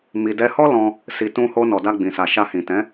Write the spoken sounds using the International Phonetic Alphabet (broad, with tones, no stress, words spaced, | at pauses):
mi˨dɛ˧hɔ˦lɔ̃˧ | si˨tũ˧ho˧ nɔ˨da˧ɡ͡bĩ˨ sa˨ʃa˧hĩ˨ tɛ̃˨˦